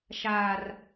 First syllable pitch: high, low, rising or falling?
high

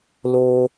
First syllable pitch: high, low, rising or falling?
low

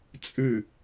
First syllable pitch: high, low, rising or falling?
falling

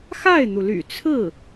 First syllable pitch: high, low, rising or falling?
falling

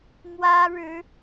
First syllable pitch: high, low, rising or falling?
high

